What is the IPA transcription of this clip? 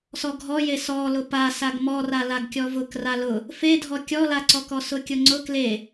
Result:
sɔɡʱɔje sɔlʊ pa saɡmɔra laɡkʲɔvʊk ralʊ | fedʱɔ kʲɔlaǀɔkɔ sʊkʲʊŋ͡ǀʊ kle

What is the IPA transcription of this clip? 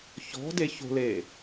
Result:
çɔ̤de ço̤leː

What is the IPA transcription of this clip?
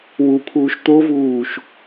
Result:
wupʰuːʃ t̪ovuːʃ

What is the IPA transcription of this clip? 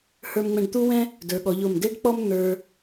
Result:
hə˞˧mŋ͡mɛ̃˧ɖt̪u˥wɛ̃˥ | də˞˩˧ ɠɔ˩˧ʎo˧˩m de˥ɖk͡pɔ˥m n̪ə˞˧

